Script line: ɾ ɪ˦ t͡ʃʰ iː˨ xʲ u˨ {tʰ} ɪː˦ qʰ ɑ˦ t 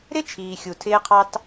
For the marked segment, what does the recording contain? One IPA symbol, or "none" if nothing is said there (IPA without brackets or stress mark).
tʰ